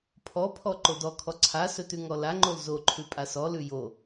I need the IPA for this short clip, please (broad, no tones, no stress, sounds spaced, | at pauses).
pʰ ɔ pʰ ɔ ǃ o d ɔ kʰ ɔ ǀʰ a s ɵ t ʉ ŋ ɔ l a ŋ͡ǃ o l z o ǃʰ ʉ pʼ a s ɔ l ʉ j o